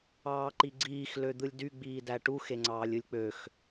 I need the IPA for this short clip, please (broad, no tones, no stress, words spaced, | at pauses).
ɑːǃiɡ͡ǀiːx lød̪ɯlʲdy ɡ͡biːdæʈu xeŋ͡ǀɑːlʲɯlʲk͡pøx